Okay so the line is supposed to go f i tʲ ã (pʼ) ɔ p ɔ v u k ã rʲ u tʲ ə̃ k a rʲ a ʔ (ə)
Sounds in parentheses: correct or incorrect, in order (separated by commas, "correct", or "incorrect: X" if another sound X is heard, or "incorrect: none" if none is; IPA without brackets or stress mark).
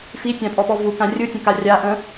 correct, incorrect: ə̃